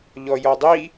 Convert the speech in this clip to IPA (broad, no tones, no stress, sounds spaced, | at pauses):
ʎ ɔ j ɔ dˤ i